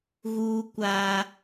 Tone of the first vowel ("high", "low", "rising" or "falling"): high